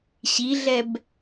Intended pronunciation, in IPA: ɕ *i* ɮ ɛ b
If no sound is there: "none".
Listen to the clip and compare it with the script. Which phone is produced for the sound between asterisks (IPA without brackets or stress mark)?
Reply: i